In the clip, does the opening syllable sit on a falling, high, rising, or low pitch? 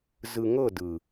low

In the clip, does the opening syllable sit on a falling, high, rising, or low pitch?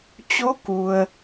rising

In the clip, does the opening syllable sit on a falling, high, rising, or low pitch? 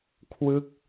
falling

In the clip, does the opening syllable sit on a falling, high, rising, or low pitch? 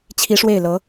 rising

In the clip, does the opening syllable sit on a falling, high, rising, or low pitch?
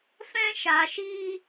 high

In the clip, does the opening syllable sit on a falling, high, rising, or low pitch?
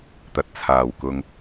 low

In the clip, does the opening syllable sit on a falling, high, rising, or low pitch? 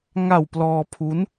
low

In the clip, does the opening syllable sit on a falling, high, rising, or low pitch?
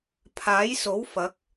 rising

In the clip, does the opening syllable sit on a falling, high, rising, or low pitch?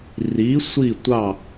rising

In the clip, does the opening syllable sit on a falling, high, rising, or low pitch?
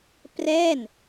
falling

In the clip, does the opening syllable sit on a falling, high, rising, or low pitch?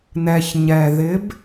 low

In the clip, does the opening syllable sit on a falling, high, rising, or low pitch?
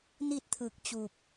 falling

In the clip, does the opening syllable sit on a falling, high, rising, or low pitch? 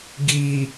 low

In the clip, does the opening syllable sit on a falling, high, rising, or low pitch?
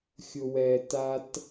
low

